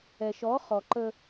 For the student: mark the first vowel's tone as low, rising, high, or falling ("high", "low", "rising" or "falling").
low